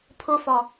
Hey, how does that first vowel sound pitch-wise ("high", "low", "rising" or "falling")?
high